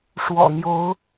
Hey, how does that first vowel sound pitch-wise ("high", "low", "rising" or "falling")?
low